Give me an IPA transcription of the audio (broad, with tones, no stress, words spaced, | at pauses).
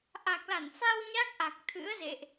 ʔa˨˩k̚la˧˩nfa˧w ɲa˦˥k̚ʔa˨˩k̚ t̪ʰɨ̰˧˥ə̯zḛ˧˨ʔ